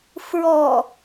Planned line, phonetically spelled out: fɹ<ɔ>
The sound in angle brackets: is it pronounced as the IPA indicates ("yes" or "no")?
yes